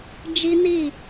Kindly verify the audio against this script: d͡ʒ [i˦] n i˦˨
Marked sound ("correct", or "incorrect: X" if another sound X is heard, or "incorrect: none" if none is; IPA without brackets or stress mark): correct